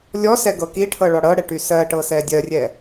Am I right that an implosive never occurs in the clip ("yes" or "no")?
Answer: yes